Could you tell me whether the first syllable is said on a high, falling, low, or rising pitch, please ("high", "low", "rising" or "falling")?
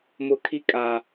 high